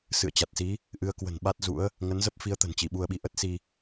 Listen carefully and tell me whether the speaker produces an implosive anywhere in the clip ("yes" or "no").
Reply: yes